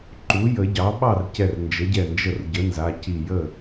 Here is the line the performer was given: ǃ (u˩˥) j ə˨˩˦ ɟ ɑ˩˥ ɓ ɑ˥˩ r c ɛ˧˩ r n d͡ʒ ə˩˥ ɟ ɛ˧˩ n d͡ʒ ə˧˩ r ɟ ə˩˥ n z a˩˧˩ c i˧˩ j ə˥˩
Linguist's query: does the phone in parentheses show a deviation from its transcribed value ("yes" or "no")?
no